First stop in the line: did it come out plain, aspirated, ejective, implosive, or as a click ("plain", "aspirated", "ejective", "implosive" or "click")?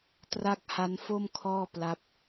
plain